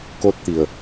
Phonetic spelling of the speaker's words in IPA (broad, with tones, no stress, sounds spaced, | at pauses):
k o˧ t̚ t̪ i˩ ə̯